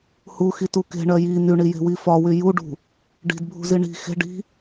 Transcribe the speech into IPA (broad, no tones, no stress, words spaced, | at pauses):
huxitu ke̤ɳɜ ji n̪yɳije̤wi fɒwy juɖṳ | ɖi̤dbʱṳzi ɳi̤ xe̤ ɖi̤